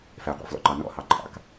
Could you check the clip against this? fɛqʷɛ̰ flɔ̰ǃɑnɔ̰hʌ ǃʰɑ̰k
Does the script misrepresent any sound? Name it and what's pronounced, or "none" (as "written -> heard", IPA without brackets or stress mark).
ʌ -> ɑ